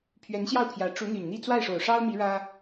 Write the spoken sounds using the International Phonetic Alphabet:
pʰ ɥ ɛ˧˥ n ɕ j ɑ˥˩ ʊ̯ pʰ j ä˧˥ ʈ͡ʂ u˧˥ n̪ y˨˩ n n̪ i˥˧ t͡s w a˥˩ ɪ̯ ʂ o˨˩ ʊ̯ ʂ ɑ˥ ʊ̯ m i˧˥ ɻ ä˥

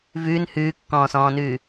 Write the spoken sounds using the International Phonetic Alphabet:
v ʉː n h ʉː kː ɔ̃ː s ɔ̃ː n ʉː

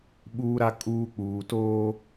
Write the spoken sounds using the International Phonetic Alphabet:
ɓ uː˨ ɾ a˨ kʼ uː˨ k͡p uː˨ t oː˦

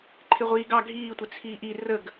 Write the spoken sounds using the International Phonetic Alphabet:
ǃʰ ɪ ʁʷ iː ɡ ɑ ɡʱ iː tʷ ɪ t͡sʰ iː ʔ i r ə ɡ

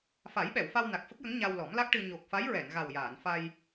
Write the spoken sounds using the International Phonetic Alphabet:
f a˨˩˦ j ɓ ɛ˨˩˨ w f a˧ w n a˨˩ k̚ f ə˦˥ k̚ j ə˧˥ ŋ ɲ a˧ w l ɔ˨˩˦ m l a˦˥ k̚ ʈ ɨ˧ ɲ o˨˩ k̚ f a˧˥ j ɹ ɛ˨˩˨ n ɣ a˨˩ w j aː˨˩˨ n f a˧ j

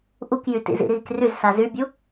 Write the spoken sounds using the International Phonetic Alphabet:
ʔ u k j y t ḭ z ḭ ɾ iː k r y z s a z y bʲ u

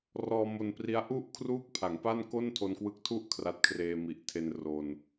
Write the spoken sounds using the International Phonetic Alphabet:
r ɔː˧ m o˧ n p r i˦˥ a̯ ʔ u˥˩ ʔ kʰ r uː˥˩ k̚ pʰ a˩˦ ŋ p a˥˩ n k o˥˩ n tʰ o˧ n k w ɯ˦˥ k̚ tʰ u˥˩ ʔ kʰ r a˦˥ t̚ kʰ r eː˧ m i˨˩ ʔ tʰ e˧ n r o˧ n

